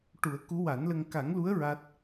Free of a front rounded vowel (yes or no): yes